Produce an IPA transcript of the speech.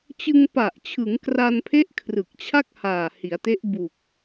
t͡ɕɯ˧ŋpa˨˩ʔ t͡ɕʰɯ˩˦ŋkra˧npʰe˦˥ʔ kʰrɯ˨˩k̚t͡ɕʰa˥˩k̚haː˨˩ hi˩˦a̯te˦˥ʔ bu˨˩k̚

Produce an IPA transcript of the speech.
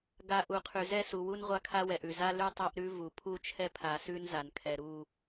ɡa˨ ʔu˨qʰʉ˨zɛ˦ su˨wu˦n ʁʷa˦kʰa˦wɛ˨ʔʉ˨ za˦ lʉ˦tˤa˦ʔɾʉ˦ vu˨ pʰu˦t͡ʃʰɛ˦pʰa˨ sʉ˦nza˨nkʰɛ˨ ɾu˦˨

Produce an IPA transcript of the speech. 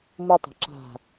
mutˤa̤ ǁa̤

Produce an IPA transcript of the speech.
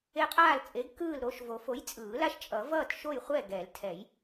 e˦qʼaː˥˨lt͡sʼe˨˥ɡ kɯː˥˨lɾoː˦ʃvo˨˩˦ fo˨˥jt͡sʼɯː˨˩˦la˦ʃ t͡ʃʼʌ˨˩˦ vʌː˥˨t ʃo˥˨jχʷɛ˥˨ ɡɛ˨˩˦ltʰɛ˨˩˦j

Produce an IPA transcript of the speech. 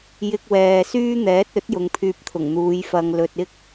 jɪ˧k̚ wɛː˨syː˥n̪ɛː˨˥t̚ ɵ˨˥t̚ jʊ˨˧ŋpʰyː˧p̚t̪ʰʊ˨˩ŋn̪uː˨˧j fɐ˧ŋlɵ˧t̚ ɪ˥k̚

